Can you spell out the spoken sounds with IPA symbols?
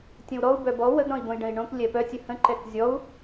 tʲ ə̃ w ɾ ɔ u̯ b œ b ɔ w ə ɡ ɾ ɔ̃ i̯ b õ i̯ ɖ ə̃ i̯ ɳ õ k lʲ ɛ p œ tʲ ə h ə̃ ǃ ɛ k zʲ ɔ u̯

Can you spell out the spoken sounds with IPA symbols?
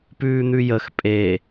p ʉː n̪ ʉ j ə x pʼ e

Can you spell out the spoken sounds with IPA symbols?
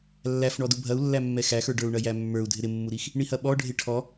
lː æ f ɳ ɔ d u bʱ ɐ u̯ lː æ mː ɛ x æ x ə˞ ɖ ə˞ u̯ ɳ ɐ j æ mː ə˞ u̯ dʱ ɪ ɾ ɪ mː u ɾ i x | ɳ i h ɐ ɓ ɔ ɖʱ ɪ ʈʰ ɔ

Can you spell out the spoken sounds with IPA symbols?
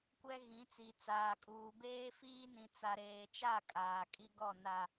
kʷ ɛ˦ ɣ ĩ˨˦ t͡s i˨ t͡s aː˨ kʼ uː˨ b eː˦ f iː˦ n ĩ˨ t͡s a˨ ɾ eː˨ t͡ʃ a˦˨ kʼ aː˨ kʼ i˦ ɡ ɔ˦˨ n a˨

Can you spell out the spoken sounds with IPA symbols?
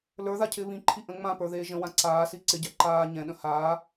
l ə˞ ð a cʰ ɪː β ĩ ǃʰ i ʔ ə̃ ŋ͡m ã p ə˞ ð eː ʒ ə̃ w ã ǀ aː s i ǀ ɪ ɟ æ ǃ aː ɲ ɛ̃ ɗ ə̃ h aː

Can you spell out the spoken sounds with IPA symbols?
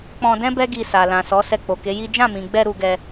k͡p ɔ̃˧ d ɛ̃˦ b ɛ˦ ɡ i˧ s a˨ l ã˨ s ɔ˨˦ s ɛ˧ k͡p o˨ k e˨˦ j i˦ d͡ʒ ã˦˨ m ĩ˨ ɡ͡b ɛ˧ ɾ u˧ ɡ ɛ˧

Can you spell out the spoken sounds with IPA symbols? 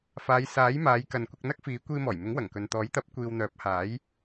f aː˨˧ j s aː˨˥ j m aː˨˧ j k ɐ˨ n kʷ ɪ˧ k̚ n̪ ɐ˥ k̚ f iː˨˥ kʷ iː˧ m ɔː˨˩ j m ɪ˨˥ ŋ w ɐ˨˩ ŋ k ɵ˨ n t̪ ɔː˨˥ j t̪ ɐ˨˥ p̚ kʷ iː˨ w n̪ œː˨˥ p̚ h aː˨˥ j

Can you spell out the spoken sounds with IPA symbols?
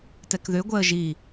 t ɛ k ð ʏ ɡʷ ɛ ə̯ ʒ i

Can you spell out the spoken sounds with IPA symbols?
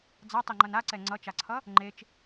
d͡z a tˤ i ŋ͡ǃ ʌ n a ǀ ɛ ŋ͡ǀ ʌ t͡ʃ a ǀʰ ʌ | ŋ͡ǃ e t͡ʃ

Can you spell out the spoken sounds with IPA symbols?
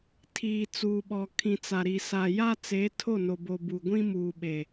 tʰ iː˨ t͡s uː˨ ɓ ɔ˨ kʰ ĩ˨ t͡s a˨ ɾ i˨ s a˨ j a˦ t͡s e˨˦ tʰ o˦˨ n o˨ b o˨ b u˨ ɡʷ ĩ˦ m uː˨ ɓ e˨

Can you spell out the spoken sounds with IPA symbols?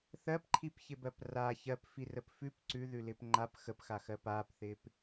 θ ɜ p ǃʰ i p ç ɪ b ɜ p r a ç ɜ p f i r ə p f ʉ p ǀ ʉ ð ʉ l ɪː p ŋ͡ǃ a p x ə p x a x ɜ p aː p θ ɪː p

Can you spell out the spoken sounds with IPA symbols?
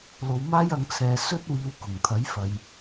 l o˨˧ w m aː˥ j ɐ˧ ŋ t͡sʰ ɛː˨˧ s ɵ˥ t̚ w iː˧ w k ʊ˨˩ ŋ t̪ʰ ɐ˨˥ j f ɐ˧ j

